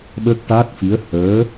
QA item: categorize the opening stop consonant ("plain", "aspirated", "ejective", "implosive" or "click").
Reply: implosive